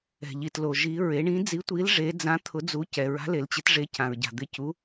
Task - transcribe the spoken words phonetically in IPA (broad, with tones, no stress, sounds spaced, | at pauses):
ɛ̤˨ ʎ i˨ t l o˨ ʒ i˧˥ ɹ e˧˥ ɳ ĩ˧˥ d͡z i˧˥ tʷ i˧˥ l ʐ e˧˥ d͡z ã˧˥ t̪ʰ ʊ˧˥ d͡z u˧˥ c ɛ˨ ɹ a̤˧˥ l e˨ l t͡ɕ ɪ˧˥ t ʐ e˧˥ c ã˨ ɹ ɟ a̤˨ d̪ ɪ˧˥ c u˧˥